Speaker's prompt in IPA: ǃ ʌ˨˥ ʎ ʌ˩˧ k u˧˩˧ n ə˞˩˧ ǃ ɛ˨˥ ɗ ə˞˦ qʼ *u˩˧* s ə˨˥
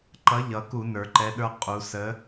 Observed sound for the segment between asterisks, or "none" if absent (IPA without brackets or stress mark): u˩˧